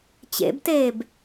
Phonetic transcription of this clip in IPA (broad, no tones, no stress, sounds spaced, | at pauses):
t͡ɕ ḛ b t eː b